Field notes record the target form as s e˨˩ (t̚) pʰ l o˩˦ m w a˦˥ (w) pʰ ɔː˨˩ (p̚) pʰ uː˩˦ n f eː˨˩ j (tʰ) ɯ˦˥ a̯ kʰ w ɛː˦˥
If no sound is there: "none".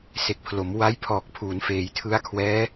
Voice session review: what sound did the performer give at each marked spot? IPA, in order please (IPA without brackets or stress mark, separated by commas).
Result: k̚, j, k̚, tʰ